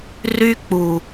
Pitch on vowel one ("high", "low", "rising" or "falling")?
high